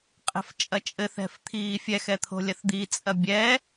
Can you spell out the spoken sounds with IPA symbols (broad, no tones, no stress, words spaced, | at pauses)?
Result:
qʼɛ̤ft͡ʃʼɐt͡ʃʼɘ θɛ̤ft̪ʰiːfʲɛx ɛt̪ʰo̤lʲɐθd̪i t͡sʼɐbʲɛ